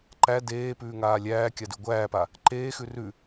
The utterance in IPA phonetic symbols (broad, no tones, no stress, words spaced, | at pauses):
ǃæ deːpʉːŋaː lʲæːkʲadʉ ɡʷæːpa | ǃeːxʉ rʉ